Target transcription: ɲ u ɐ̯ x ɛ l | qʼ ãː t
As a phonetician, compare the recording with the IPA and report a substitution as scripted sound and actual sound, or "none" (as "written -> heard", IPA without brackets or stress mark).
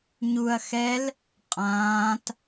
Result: none